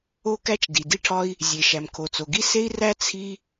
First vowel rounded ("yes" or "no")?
yes